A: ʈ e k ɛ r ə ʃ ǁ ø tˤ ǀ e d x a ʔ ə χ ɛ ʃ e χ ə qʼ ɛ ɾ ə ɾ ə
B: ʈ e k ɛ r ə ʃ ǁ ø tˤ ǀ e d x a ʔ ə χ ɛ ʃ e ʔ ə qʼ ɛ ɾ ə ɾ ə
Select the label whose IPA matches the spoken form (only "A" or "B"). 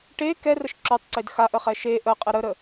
B